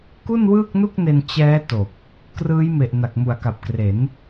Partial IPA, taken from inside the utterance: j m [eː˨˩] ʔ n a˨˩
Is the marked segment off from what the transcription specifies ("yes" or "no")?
yes